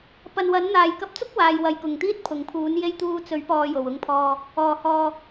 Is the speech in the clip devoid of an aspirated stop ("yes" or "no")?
no